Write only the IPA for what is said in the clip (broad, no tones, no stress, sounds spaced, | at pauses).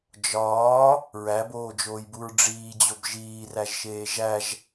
d͡ʒ ɒː | ɹ æ b oː d͡ʒ oː j b u ɹ ɖ͡ʐ iː d͡ʑ o b ʒ iː r æ ʒ ʃ eː ʒ æ ʒ